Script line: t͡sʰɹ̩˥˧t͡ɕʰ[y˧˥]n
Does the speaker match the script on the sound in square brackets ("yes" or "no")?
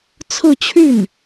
no